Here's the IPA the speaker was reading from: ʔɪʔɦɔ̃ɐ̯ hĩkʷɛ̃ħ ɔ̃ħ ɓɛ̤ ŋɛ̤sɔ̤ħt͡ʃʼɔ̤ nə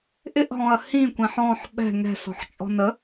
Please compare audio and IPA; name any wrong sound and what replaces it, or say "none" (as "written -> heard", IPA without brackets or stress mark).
none